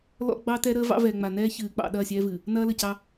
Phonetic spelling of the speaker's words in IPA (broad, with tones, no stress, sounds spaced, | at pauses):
l ɔ̰˦ ɡ͡b ɑ˦ t ɛ˦ ɾ əː˦ v ɑ̰˦ v ɛː˨ ŋ͡m a˨ n ɛː˦ ç ɨː˨ k͡p ɑ̰˨ ɗ ɐː˦˨ sʲ ɛː˦ v ɨ˨ | n ɐː˦ l ə˨ c ɑ˦